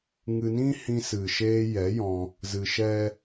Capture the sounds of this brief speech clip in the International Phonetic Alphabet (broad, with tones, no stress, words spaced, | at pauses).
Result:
ŋɨ˧nĩ˦ hĩ˧sɨ˨ʃeː˧jɛ˨˦ jɔ̃˧ | zɨ˧ʃɛ˦